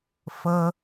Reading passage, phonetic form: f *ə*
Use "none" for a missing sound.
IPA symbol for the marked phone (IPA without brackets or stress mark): ə